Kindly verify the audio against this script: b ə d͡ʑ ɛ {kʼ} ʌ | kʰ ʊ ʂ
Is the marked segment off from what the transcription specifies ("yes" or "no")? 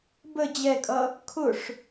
no